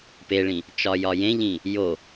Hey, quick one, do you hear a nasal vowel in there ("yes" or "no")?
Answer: yes